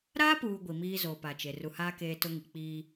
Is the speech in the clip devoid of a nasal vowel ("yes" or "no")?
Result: yes